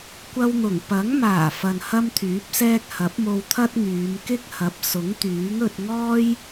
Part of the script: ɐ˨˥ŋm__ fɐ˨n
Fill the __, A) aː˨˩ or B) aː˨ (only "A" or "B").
A